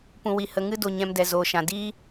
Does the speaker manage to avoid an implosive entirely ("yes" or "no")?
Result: yes